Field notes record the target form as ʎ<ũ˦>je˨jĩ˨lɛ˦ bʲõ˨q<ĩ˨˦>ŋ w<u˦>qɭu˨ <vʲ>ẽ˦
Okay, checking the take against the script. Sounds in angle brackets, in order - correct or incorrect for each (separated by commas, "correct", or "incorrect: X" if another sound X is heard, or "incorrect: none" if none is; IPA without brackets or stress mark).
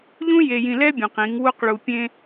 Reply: correct, correct, correct, incorrect: pʲ